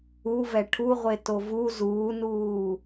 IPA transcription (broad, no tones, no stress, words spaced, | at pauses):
uvɛ ʈʰuʁʷe tovu zuːnuː